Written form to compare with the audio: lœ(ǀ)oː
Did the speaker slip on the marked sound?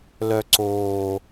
no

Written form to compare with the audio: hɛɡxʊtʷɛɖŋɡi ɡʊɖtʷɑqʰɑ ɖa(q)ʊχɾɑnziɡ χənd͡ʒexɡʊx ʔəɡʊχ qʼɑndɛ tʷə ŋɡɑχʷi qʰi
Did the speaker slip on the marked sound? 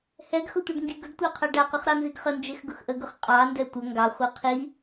no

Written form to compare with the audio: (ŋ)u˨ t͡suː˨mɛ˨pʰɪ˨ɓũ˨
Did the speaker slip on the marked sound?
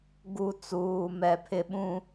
yes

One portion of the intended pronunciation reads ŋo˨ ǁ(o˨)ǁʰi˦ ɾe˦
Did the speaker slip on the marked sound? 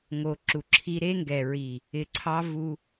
yes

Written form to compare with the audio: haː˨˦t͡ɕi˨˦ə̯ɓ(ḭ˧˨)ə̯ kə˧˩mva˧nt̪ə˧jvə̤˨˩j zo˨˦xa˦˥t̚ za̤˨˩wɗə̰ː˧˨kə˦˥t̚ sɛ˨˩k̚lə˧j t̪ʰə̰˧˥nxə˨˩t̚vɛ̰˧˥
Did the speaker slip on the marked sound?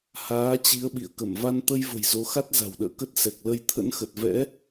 no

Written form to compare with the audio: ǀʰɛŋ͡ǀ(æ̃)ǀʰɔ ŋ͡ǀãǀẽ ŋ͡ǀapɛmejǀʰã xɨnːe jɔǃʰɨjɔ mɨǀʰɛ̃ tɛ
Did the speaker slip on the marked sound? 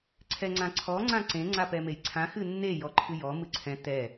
yes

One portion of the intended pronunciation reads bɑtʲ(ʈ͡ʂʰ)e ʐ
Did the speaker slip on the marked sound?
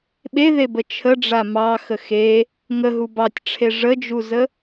no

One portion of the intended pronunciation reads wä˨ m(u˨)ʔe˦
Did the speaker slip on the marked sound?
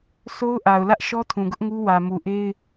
no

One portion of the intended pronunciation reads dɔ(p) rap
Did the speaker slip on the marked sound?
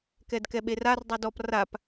no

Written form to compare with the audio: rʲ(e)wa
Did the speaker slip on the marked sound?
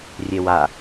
no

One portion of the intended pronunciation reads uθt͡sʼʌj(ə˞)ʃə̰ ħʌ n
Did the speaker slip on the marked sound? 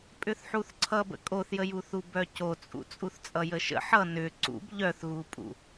yes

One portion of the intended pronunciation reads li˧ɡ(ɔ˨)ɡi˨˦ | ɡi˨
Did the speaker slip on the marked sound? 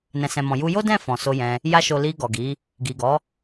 no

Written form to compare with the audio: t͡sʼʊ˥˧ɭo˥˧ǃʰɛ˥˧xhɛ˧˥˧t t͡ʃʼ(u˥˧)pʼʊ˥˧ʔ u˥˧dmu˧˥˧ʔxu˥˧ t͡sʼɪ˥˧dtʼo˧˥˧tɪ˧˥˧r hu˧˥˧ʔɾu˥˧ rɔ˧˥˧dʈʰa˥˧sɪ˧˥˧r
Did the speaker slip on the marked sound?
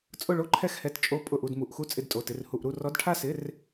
yes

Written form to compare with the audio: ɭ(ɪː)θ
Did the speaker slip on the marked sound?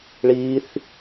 yes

